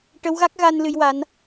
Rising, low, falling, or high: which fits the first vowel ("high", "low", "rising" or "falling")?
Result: rising